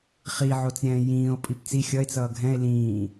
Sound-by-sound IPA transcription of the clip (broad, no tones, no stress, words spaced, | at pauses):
χiʕot͡sɾʲɛ̃ː jĩːo̯ pʼipt͡si xʲʌe̯t͡sʌː ɡʱɛ̃e̯ lĩː